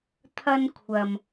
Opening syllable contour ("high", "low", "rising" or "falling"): high